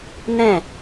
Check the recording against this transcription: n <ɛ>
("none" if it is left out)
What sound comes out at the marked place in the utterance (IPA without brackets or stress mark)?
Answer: ɛ̃